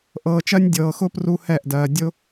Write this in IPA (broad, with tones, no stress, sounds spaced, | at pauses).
ʔ ɤː˨ t͡ʃ ɜ˦ nʲ dʲ ɤː˨ x ʊ˦ p r u˦ h ɛ˦˨ ʔ d ɜː˨ dʲ ʊ˦